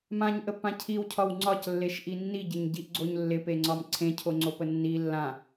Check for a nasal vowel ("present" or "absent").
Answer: present